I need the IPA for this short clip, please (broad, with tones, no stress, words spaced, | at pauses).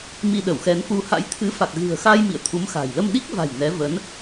mi˧ɗə˧˩wxɛ˨˦nfu˧ ha̰˧˥jt̪ʰɨ˨˦fa˨˩k̚ ɣɨ̤˨˩ə̯xa˧j mḭ˧˨ə̯t̪ʰu˨˦mxa̤˨˩j lə˧mɗi˦˥k̚va̤˨˩j nɛ˨˦ və˨˦n